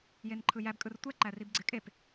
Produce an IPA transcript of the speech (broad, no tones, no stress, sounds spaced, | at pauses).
j e n ǃʰ ɯ j æ b kʼ ɯ r tʷ ɛ ǃ æ r i b ɡ͡ǀ ɪ kʼ e p